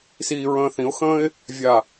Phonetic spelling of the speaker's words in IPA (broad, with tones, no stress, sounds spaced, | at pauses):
s iː˨ ɹ ə̃ː˨ θ ĩ˨˦ ʊ̯ x ə̃ː˦ ɪ̯ | vʲ a˨